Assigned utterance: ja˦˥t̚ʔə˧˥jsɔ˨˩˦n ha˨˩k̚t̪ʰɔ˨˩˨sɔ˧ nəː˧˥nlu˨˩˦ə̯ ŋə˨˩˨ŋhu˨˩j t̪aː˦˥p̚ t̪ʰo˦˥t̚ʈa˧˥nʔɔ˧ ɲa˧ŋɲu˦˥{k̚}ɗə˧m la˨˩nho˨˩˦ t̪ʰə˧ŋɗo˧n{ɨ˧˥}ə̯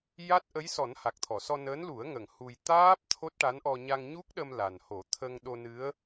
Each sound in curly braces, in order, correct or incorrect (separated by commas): correct, correct